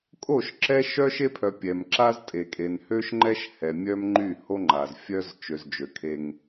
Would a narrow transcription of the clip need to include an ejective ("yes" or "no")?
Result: yes